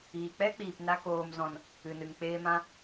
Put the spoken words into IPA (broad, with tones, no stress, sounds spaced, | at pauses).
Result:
iː˨ k͡p ɛ˦ k͡p iː˨ p n a˧ k oː˨ m z ɔ̃˨ n | ɨ˨ n ɨ˨ ŋ k͡p eː˧ m ã˧